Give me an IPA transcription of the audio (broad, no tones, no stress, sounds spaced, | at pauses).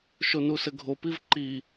ʃ o n u s ɘ ɡʱ o p i v ǃ i